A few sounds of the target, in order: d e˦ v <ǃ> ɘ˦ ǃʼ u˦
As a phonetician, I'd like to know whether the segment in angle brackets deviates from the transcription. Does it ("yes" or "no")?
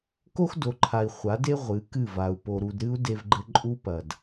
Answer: yes